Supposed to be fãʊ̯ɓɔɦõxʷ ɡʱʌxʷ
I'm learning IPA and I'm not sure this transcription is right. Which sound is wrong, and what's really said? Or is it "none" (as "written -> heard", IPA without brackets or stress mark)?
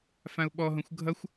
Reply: none